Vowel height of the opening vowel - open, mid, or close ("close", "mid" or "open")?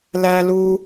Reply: open